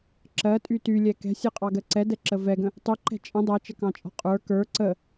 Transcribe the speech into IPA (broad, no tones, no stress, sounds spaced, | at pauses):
ǁ ɜ tʼ y t y lʲ ɛ k ɛ̤ sʲ ɛ qʼ ɑ ɡ ɜ ǀ ɛ d ɛ ǁ ə v ɛ ɡ ə̃ | tˤ y ǃ ɛ̤ t͡ʃʼ ə̃ dˤ ɜ t͡ʃ ə k ɑ̃ t͡ʃʼ ɔ̤ qʼ ə˞ k ə˞ ǀ ə